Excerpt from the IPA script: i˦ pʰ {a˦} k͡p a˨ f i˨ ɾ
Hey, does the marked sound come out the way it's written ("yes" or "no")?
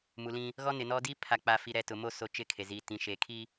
no